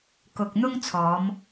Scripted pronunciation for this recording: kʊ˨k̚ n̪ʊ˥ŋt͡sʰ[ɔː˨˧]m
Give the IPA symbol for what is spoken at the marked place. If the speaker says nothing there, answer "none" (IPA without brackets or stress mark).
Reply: ɔː˨˧